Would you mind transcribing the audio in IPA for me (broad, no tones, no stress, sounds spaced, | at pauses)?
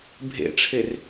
bʱ ḛ ʈ͡ʂʰ e r